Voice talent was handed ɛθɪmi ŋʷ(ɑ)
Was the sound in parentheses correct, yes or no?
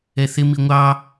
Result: yes